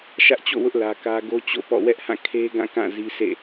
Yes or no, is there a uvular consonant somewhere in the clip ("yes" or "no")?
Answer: no